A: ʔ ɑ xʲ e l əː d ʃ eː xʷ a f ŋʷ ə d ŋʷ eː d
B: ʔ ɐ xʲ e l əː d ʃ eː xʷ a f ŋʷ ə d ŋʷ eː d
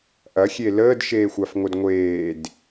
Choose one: B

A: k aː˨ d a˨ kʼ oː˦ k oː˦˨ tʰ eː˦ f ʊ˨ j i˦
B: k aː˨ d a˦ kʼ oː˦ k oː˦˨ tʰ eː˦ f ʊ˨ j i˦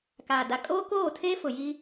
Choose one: A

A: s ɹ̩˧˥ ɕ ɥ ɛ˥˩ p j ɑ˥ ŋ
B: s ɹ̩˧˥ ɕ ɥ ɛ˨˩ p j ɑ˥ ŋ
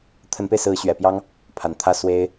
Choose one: B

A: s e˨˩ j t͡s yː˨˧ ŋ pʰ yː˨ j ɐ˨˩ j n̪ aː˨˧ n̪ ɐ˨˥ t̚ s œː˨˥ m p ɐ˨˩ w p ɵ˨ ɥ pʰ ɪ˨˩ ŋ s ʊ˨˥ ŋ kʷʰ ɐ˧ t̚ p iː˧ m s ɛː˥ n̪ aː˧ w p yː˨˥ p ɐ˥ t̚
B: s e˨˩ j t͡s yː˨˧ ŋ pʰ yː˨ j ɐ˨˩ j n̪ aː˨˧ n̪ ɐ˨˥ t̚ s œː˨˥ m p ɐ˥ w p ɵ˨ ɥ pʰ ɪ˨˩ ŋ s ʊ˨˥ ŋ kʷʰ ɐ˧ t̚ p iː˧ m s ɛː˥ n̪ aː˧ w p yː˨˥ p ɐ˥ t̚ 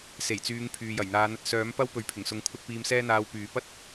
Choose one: B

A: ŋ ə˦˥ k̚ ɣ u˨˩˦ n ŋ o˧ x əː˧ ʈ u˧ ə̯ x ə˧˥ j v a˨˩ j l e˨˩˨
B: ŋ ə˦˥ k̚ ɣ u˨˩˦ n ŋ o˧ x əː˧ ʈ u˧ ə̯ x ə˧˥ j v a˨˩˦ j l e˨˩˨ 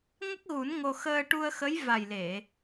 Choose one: A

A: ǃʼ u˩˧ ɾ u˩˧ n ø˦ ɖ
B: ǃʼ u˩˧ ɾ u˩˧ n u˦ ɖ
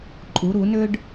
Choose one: A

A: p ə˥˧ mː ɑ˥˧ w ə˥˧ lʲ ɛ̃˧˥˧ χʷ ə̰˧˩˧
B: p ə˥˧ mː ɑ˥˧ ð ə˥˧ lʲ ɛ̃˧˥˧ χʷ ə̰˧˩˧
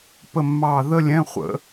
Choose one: B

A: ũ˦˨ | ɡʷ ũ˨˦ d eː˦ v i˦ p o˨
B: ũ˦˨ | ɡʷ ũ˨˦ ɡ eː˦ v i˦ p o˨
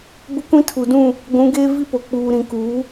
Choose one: B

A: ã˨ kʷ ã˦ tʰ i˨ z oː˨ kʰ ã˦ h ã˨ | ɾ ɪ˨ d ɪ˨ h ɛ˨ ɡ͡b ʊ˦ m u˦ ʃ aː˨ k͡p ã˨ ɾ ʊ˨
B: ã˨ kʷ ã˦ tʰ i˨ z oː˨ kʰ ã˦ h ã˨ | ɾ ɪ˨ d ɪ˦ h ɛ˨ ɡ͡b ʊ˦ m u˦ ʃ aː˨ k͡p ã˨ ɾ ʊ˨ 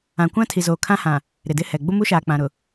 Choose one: B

